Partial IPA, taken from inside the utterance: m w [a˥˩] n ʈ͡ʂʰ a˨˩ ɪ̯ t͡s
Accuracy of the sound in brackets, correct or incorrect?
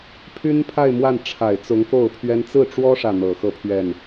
correct